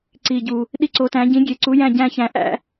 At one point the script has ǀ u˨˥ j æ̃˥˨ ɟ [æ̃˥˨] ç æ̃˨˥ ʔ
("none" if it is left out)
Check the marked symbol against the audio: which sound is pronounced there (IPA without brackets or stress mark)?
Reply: æ̃˥˨